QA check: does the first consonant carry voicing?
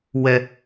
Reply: yes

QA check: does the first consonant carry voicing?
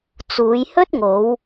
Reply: no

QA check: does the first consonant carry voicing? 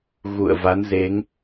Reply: yes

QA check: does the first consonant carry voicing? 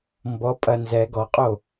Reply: yes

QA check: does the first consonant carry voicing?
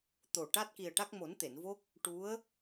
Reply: no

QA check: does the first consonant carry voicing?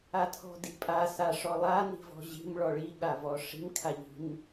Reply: no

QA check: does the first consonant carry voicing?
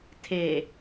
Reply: no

